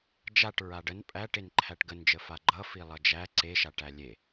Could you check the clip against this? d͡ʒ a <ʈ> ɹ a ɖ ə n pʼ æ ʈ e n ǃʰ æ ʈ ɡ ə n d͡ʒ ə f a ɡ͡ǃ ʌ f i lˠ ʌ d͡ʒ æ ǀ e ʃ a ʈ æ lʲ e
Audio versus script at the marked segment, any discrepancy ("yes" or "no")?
no